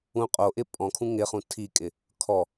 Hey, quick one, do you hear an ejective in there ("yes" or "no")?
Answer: yes